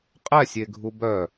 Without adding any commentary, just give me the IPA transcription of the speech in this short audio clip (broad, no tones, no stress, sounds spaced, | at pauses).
qʼ ɛ sʲ e ɡʱ u b œ